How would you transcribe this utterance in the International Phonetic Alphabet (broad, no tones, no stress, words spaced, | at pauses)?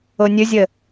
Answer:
onʲɵzʲə